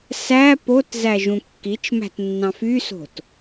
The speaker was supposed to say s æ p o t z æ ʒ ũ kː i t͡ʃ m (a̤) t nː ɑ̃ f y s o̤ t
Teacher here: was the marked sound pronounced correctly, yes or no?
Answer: no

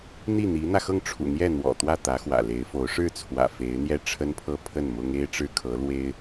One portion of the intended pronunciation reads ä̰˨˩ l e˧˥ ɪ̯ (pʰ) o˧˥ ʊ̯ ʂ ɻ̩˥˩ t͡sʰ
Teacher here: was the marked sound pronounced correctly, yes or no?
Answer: no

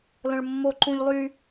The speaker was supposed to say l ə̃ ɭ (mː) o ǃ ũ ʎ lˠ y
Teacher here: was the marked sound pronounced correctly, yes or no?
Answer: yes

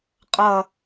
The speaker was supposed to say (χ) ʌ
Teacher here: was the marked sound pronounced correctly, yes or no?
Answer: no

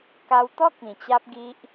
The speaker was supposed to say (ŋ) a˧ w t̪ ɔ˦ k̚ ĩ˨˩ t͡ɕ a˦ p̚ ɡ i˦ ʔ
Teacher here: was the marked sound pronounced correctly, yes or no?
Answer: no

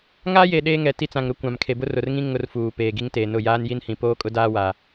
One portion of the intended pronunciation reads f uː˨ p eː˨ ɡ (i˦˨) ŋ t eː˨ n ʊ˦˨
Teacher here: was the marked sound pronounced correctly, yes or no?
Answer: no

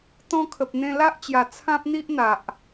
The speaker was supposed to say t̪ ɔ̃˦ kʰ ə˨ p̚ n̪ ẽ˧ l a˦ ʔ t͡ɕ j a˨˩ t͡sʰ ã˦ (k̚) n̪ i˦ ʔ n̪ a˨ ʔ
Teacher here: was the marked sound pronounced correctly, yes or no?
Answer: no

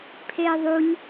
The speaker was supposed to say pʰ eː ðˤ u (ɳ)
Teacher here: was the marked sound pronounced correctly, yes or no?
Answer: no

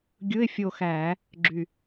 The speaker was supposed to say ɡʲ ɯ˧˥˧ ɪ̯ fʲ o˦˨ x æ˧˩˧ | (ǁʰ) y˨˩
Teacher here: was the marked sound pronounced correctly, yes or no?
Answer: no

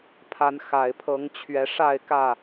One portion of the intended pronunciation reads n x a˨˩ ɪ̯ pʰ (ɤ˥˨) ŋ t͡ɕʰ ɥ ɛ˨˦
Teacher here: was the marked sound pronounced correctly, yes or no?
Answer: no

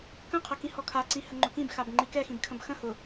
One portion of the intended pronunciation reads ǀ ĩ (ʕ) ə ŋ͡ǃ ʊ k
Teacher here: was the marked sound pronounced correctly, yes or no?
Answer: no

